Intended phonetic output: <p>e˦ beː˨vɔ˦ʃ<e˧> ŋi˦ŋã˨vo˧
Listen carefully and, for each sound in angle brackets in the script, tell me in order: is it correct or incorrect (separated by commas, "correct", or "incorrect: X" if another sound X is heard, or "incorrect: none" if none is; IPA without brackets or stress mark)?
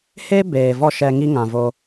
incorrect: h, incorrect: ɛ˧